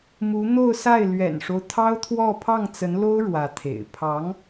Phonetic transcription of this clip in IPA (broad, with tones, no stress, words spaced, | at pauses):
mu˧˥n̪o˥˧ʊ̯sa˥˩ɪ̯ lɥɛ̰˨˩nʂo˦ʊ̯ t̪ʰɑ˥ʊ̯t̪ʰwɔ˥˧ pʰɑ˥˩ŋt͡sə˧˥nlo˥ʊ̯ ɻwä˧˥t̪ʰḛ˨˩ɪ̯ pʰɑ˧˥ŋ